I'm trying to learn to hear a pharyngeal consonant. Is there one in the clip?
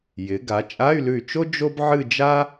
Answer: yes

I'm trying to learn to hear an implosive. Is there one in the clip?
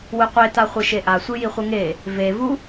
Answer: no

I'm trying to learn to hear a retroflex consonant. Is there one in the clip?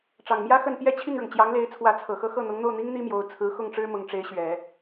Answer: yes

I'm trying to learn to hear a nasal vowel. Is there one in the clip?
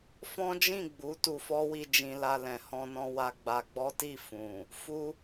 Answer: yes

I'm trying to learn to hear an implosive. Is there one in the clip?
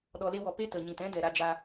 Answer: yes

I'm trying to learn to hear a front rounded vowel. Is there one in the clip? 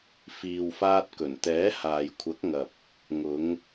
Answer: no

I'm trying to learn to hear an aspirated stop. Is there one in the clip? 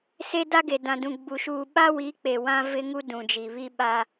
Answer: no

